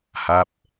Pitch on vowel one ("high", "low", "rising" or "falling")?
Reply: falling